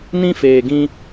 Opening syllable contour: high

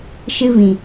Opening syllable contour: high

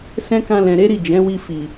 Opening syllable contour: high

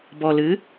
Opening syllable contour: low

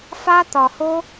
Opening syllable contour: high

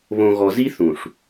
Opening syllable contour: low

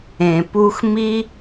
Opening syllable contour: low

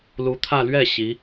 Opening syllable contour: rising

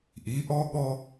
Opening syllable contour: rising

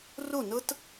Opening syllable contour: falling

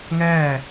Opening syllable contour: falling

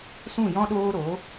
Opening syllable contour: falling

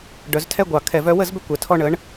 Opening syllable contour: rising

